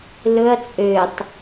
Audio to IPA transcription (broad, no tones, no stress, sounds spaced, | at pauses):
l ɵ ɐ̯ t͡sʼ ø tˤ